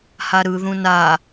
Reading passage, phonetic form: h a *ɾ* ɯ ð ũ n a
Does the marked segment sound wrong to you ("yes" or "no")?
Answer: no